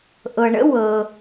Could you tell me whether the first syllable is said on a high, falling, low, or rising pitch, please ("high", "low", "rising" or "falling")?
low